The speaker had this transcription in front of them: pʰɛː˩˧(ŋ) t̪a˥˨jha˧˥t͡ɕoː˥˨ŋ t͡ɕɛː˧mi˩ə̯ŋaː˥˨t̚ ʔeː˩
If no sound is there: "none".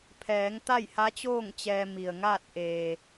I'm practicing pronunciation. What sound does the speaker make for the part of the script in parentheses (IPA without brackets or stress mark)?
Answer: ŋ